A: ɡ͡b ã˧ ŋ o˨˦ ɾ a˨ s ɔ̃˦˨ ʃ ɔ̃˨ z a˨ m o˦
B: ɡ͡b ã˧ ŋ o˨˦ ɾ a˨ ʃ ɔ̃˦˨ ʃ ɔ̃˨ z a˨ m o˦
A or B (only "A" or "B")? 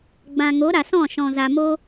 A